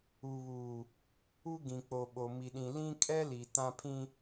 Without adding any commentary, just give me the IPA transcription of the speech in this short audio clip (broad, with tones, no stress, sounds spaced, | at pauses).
u˨ β uː˨ | u˦ ɡ ĩ˨ k͡p o˨ ɓ o˨ m i˨ ɗ ĩ˨ l ĩ˦ kʼ ɛ˦ l i˨ t ã˦ pʰ ĩ˦